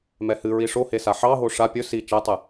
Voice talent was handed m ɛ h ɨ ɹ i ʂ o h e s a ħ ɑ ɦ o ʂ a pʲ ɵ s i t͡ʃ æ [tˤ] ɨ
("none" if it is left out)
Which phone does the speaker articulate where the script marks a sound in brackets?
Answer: tˤ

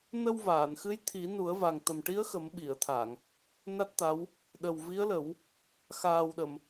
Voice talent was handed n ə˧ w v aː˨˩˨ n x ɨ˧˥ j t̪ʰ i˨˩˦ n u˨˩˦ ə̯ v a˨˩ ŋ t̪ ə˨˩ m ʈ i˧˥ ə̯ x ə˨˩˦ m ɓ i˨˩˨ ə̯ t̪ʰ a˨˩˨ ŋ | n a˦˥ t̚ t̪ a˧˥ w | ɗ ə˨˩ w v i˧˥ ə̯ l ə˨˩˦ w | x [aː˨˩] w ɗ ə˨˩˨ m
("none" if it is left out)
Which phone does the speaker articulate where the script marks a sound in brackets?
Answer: aː˨˩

